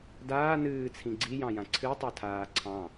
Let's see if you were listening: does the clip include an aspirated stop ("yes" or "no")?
yes